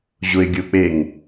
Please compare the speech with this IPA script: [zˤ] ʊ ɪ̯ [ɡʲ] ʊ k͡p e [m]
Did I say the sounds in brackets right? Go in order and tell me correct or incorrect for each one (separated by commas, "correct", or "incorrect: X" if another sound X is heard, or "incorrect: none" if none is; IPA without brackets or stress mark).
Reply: incorrect: ʑ, correct, incorrect: ŋ